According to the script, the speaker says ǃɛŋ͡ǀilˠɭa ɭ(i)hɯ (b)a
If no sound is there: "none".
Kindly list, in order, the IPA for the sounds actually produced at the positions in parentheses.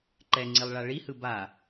i, b

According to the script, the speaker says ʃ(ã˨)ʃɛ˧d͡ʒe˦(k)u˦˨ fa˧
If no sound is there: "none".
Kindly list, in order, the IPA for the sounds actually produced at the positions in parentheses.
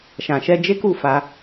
ã˨, k

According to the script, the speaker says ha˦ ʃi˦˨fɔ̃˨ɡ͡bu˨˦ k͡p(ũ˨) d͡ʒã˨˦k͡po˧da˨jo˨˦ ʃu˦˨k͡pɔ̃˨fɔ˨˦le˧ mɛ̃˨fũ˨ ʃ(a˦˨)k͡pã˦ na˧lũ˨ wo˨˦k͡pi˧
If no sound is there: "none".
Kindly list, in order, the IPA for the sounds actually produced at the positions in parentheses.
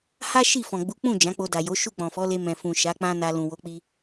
ũ˦˨, a˨˦

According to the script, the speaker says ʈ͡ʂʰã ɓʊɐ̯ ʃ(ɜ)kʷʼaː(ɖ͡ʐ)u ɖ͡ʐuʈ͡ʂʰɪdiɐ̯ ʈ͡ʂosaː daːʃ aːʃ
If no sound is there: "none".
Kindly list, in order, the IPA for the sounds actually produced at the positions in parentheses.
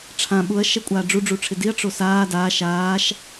ɛ, ɖ͡ʐ

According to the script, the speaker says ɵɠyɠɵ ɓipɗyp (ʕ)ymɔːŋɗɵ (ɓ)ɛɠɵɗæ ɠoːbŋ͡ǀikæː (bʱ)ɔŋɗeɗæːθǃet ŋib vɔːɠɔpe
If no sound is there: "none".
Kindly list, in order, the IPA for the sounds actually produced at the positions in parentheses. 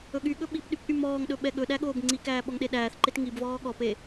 ʔ, ɓ, ɓ

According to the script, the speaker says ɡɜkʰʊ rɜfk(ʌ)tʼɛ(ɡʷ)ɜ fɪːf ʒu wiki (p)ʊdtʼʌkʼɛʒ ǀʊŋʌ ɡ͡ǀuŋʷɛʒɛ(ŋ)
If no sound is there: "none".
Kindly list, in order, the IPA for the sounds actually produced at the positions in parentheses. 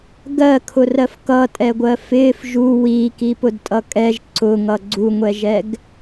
ʌ, ɡʷ, p, ɡ

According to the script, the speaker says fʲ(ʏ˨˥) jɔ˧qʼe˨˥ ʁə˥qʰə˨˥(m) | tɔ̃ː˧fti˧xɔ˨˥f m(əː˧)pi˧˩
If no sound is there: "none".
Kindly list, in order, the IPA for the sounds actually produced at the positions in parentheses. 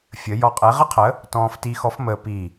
ə˨˥, none, əː˧

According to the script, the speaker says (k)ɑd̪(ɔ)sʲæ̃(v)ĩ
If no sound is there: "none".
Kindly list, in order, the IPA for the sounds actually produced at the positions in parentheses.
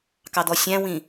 k, ɔ, w

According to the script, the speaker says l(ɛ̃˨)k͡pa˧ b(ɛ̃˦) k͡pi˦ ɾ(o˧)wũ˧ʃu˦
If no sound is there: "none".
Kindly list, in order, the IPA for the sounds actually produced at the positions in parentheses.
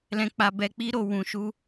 ɛ̃˧, ɛ˦, o˧

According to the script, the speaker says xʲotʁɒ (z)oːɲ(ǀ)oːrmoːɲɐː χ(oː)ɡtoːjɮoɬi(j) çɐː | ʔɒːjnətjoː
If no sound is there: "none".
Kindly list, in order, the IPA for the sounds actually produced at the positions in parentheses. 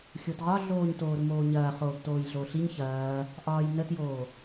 ɮ, t, oː, ɲ

